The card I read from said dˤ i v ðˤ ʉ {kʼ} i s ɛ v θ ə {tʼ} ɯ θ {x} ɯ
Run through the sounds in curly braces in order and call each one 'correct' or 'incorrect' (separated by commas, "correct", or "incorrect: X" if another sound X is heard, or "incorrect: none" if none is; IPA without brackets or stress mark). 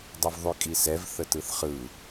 correct, incorrect: t, incorrect: χ